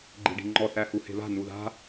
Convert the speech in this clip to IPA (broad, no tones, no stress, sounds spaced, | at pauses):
ɡ͡ǃ i̤ ɖ i̤ ŋ͡ǃ ɔ θ æ h u h e̤ β a̤ n u ð a̤